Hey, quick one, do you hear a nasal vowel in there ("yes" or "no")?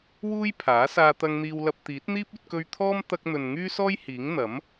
no